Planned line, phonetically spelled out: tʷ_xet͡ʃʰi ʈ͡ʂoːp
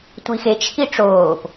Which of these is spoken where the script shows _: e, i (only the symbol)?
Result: i